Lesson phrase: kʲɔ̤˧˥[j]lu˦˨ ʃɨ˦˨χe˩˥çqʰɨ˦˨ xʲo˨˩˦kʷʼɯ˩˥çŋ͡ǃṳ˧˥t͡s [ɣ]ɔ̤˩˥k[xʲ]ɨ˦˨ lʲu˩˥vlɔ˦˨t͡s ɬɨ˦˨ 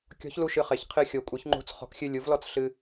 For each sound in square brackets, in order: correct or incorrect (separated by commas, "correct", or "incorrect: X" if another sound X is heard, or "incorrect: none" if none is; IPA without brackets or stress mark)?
incorrect: ç, incorrect: χ, correct